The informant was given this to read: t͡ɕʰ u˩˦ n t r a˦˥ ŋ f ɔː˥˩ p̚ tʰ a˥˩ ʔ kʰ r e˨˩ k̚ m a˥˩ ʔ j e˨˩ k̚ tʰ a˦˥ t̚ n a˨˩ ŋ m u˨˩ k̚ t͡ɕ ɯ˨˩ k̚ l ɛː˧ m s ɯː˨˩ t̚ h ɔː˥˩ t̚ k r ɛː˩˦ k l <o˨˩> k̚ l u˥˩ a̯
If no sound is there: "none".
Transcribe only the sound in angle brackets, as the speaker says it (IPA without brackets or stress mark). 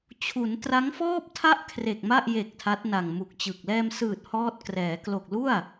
o˨˩